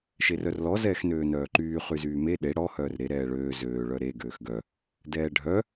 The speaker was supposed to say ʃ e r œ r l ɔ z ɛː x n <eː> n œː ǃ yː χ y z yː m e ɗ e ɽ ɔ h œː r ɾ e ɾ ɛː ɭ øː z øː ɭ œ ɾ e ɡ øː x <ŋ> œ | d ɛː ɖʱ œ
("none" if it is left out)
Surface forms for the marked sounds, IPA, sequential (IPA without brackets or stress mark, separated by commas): øː, ɡ